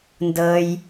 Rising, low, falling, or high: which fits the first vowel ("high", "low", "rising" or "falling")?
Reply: low